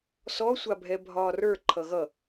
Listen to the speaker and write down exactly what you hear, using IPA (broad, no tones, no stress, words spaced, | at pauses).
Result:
sɔsʷabʱɛ bʱɒːrə˞ ǃʰʌɣʌ